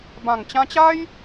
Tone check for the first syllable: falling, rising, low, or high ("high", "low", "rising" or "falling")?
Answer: low